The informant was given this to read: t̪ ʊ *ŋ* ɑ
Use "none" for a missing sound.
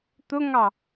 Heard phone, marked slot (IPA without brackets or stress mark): ŋ